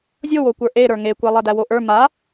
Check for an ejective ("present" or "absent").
absent